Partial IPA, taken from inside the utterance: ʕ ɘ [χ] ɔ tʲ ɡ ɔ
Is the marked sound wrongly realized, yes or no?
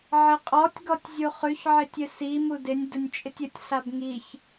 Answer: yes